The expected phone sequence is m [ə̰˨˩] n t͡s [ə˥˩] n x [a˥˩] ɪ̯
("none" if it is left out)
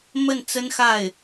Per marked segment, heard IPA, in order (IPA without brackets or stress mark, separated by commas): ə˥˩, ə˥, a˥˩